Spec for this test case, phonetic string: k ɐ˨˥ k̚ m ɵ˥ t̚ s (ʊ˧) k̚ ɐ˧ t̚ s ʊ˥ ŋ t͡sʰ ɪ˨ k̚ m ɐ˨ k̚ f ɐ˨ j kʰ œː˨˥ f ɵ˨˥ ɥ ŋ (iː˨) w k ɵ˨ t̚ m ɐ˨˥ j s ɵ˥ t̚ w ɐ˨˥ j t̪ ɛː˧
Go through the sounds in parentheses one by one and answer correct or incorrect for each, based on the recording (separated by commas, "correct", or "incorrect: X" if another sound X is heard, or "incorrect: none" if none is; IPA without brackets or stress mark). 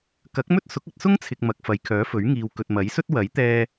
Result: incorrect: ʊ˨˥, correct